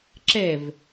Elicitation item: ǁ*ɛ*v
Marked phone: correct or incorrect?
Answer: correct